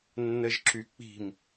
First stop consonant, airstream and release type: click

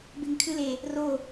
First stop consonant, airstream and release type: plain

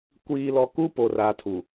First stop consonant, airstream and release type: plain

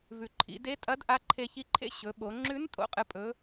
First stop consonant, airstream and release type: click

